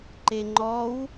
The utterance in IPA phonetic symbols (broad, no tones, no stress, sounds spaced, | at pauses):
ǃ e ŋ͡ǃ ɔ w